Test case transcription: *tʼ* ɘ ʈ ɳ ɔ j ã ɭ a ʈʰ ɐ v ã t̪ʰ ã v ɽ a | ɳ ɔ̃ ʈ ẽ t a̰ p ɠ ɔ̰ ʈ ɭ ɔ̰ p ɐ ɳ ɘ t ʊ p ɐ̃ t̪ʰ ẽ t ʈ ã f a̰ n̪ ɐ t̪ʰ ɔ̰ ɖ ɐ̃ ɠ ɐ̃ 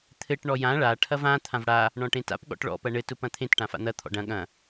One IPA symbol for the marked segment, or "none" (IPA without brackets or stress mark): t̪ʰ